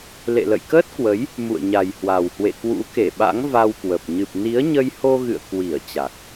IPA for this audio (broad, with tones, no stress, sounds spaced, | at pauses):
l ḛ˧˨ l ə̰˧˨ j k əː˦˥ t̚ k w ə˨˦ j | m ṵ˧˨ ə̯ ɲ a˨˩ j h w a˨˩ w h w ḛ˧˨ k w ṵ˧˥ k e˧˩ ɓ a̰˧˥ ŋ v a˧ w k w ə˨˩ p̚ ɲ ɨ˨˩ p̚ n i˨˦ ə̯ ɲ ə˧ j h o˧ ɣ ɨ̰˧˨ ə̯ k w i˧˩ ə̯ t͡ɕ a˨˩ k̚